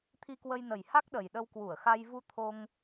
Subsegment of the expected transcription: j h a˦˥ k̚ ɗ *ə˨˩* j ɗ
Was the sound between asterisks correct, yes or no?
yes